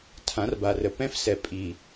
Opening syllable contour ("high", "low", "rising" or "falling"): rising